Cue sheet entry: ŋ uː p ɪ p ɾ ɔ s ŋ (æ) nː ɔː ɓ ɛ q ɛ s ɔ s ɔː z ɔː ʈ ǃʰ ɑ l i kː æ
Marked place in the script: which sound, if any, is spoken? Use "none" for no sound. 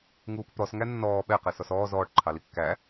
æ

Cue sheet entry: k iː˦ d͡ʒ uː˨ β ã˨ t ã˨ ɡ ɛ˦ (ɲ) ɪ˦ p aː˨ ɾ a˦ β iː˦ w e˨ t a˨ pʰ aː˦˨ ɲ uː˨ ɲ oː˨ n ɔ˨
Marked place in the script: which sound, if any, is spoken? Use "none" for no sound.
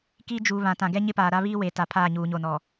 ɲ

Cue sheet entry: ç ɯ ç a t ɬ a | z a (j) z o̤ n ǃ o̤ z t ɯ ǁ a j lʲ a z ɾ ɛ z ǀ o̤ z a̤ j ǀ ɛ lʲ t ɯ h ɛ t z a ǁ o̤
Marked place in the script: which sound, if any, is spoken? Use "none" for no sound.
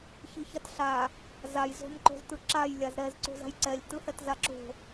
j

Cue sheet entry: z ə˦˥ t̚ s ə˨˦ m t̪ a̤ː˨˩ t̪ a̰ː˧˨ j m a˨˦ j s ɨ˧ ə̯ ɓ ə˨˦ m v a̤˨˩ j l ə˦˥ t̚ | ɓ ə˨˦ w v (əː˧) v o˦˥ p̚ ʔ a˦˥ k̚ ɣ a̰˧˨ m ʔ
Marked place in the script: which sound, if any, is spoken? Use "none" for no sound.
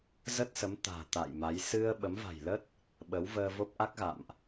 əː˧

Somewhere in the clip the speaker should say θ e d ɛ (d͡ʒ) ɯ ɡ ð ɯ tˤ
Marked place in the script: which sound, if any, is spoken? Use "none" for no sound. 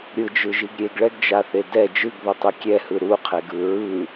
d͡ʒ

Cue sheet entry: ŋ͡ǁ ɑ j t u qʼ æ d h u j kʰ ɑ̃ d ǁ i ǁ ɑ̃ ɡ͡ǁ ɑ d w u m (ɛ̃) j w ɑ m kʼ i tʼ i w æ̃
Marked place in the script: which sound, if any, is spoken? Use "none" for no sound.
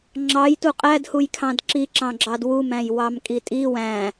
æ̃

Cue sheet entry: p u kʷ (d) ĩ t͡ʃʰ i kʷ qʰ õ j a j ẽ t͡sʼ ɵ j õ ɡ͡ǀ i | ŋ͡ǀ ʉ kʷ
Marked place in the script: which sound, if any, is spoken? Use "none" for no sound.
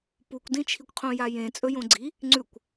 d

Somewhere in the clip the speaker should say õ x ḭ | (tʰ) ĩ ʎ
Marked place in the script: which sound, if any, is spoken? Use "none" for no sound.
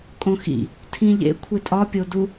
tʰ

